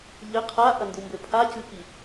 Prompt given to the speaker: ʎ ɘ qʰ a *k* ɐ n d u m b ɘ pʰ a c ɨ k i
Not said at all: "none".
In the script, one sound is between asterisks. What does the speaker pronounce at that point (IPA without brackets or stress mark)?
ʔ